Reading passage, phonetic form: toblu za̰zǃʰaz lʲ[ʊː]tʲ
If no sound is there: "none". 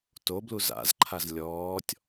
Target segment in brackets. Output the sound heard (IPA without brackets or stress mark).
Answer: ɔː